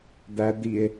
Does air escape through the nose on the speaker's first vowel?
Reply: no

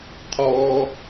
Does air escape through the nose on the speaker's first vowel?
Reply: no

